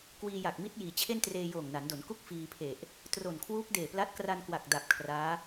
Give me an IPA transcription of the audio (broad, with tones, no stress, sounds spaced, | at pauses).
k w iː˧ j a˨˩ k̚ m i˦˥ t̚ j iː˩˦ t͡ɕʰ e˥˩ n t r eː˧ j oː˨˩ ŋ n a˩˦ n d o˩˦ n k u˥˩ k̚ f iː˧ pʰ e˨˩ ʔ | t r o˨˩ n kʰ w uː˦˥ k̚ d eː˨˩ p l a˦˥ t̚ k r a˧ n k w a˨˩ k̚ d a˨˩ p̚ kʰ r aː˦˥